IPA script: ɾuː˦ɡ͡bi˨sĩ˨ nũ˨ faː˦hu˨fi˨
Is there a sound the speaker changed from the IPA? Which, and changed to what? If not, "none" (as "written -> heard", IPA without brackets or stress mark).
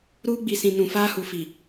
none